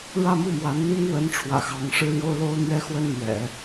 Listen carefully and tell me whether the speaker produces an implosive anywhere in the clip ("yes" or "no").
no